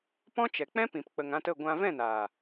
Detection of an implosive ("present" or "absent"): absent